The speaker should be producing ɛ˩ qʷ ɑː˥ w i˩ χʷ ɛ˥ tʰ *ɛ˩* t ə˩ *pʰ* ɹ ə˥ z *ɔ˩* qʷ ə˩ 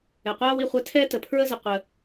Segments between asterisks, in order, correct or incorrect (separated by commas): incorrect, correct, incorrect